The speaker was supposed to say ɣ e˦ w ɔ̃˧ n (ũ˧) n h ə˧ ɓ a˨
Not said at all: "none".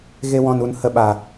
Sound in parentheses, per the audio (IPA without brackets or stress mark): u˧